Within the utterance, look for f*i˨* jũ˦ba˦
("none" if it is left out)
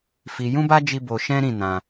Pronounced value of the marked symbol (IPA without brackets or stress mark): i˧